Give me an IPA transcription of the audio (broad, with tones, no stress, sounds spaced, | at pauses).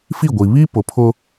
f i˦˨ ɡʷ i˨ β i˦ p ʊ˨ pʰ ʊ˦